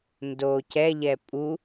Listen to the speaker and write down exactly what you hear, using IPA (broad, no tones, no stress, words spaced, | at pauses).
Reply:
ndo cɛʎɛ pʼu